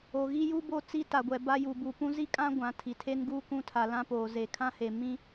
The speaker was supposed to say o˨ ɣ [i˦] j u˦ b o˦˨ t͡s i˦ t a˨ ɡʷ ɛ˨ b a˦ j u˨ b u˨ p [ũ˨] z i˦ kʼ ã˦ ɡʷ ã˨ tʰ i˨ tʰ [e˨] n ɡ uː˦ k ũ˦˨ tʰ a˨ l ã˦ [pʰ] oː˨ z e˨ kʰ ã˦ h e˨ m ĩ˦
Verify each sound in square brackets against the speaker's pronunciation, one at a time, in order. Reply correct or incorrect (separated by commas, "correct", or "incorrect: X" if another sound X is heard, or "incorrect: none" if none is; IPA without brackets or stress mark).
correct, incorrect: ũ˦, incorrect: e˦, incorrect: p